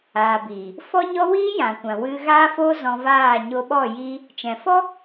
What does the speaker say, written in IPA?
aː˨biː˨ | fɔ˦ɲɔ˦ wiː˦jã˨kʷã˨ wɨ˧ɣaː˦fo˦ zɔ̃˧vaː˦˨ ɲo˧ɓɔ˦˨ jiː˦ | t͡ʃɛ̃˨fɔ˦

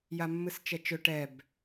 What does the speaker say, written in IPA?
jamːɨst͡ʃɛt͡ʃɵ ʈɛb

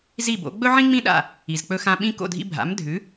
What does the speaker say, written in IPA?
zi˥˩bo̰˩˥ ɡ͡bɵ˥ʕĩ˥ŋ͡mĩ˥ɗa̰˥˩ | i˩zk͡pɵ˧xã˧ ɓĩ˧ ko̰˥˩dʱḭ˧bʱa̰˩˥mdʱʉ˩˥

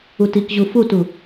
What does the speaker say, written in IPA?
utikʑu futu

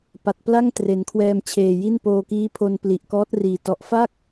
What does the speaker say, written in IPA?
pa˨˩t̚pla˥˩ŋ tre˩˦nkʰwɛː˧mt͡ɕʰeː˨˩ ji˥˩npoː˧kiː˦˥pʰo˧n pli˨˩ʔkɔː˦˥t̚riː˨˩ tɔ˨˩ʔfa˥˩k̚

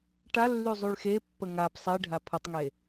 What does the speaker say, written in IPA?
ʈalːy zˤyɭxepːə ŋap sˤiɖʱa pʰətˤŋe

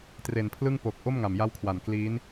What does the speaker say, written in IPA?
tre˨˩npʰlɯ˥˩ŋ po˨˩k̚ ʔo˥˩m ŋa˨˩mja˦˥wkʰwa˨˩n kliː˦˥n

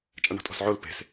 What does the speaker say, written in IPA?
t͡ʃʼaɳɔ̤tʼɔ̤sʕol pe̤s

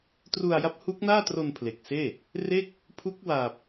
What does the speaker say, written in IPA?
tru˧a̯ja˦˥p̚hu˦˥k̚naː˥˩ tro˧n pʰle˨˩k̚seː˥˩ | re˥˩k̚ | pʰu˦˥k̚waː˨˩p̚

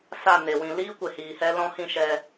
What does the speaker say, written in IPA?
sa˦˨ne˨ wĩ˨liː˦ kʷe˨hiː˨hɛ˧ lɔ̃˦ hĩ˦˨ʃɛ˧

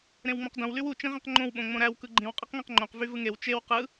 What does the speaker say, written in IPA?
ɾẽwŋ͡mõqdõw lywu t͡ʃĩʁĩqŋ͡ǃõw ɓõŋ͡mõɾæw kɯɡ͡ǃĩw qʼiqŋẽqŋ͡ǃõq vyvɯŋew t͡ʃew qɯ

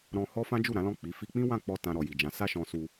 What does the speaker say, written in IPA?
ɾɔ̃˧hɔ˦ fã˦d͡ʒu˦˨ɾã˨˦ lɔ̃˦˨k͡pi˨˦ fi˧k͡pĩ˦ wã˦˨k͡pɔ˧ tã˧ɾɔ˨ji˨d͡ʒã˨˦ sa˦ʃɔ̃˧su˧

